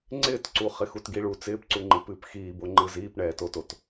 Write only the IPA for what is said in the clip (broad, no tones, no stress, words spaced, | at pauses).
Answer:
ŋ͡ǀɪːtǀu χɪxutɡiɭu t͡sɪːpǀuŋ͡ǃɨ pɨːpxiːboŋ͡ǃɯ ziːpɳɛːtotot